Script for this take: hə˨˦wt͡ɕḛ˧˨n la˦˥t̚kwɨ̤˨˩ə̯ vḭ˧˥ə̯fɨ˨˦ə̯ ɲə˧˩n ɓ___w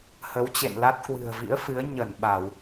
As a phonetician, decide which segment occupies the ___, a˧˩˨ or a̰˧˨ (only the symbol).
a˧˩˨